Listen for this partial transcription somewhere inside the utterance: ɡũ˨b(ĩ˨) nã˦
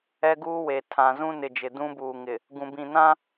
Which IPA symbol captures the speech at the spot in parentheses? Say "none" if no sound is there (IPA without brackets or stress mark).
ĩ˨